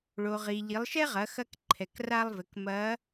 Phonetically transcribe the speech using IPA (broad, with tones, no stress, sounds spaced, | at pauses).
ɭ o˩ ʁ i˩ ʎ i˩˧ lˠ ʃ ɛ˥ ʁ ɐ˩˧ x ɐ˧ k ǃʰ ɛ˩ k r a˧ lˠ v ɘ˩˧ k m ɐ˧˥